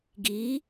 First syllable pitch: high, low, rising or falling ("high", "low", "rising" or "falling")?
rising